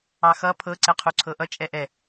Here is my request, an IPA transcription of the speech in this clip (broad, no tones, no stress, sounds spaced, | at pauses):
ɑ x ʌ pʰ ɤ ǀ ɛ qʰ u ǀʰ ɤ ʔ ʌ t͡ʃʼ ɛ ʔ ɛ